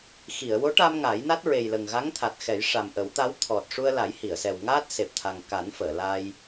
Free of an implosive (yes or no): yes